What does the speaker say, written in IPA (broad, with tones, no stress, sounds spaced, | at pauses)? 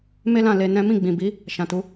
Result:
m e˦ l ã˦˨ l e˧ n ɛ̃˦ m ĩ˦˨ ɡ͡b ĩ˨ b i˨˦ | ʃ ã˨ t u˨˦